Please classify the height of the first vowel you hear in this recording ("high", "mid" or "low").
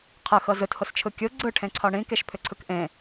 high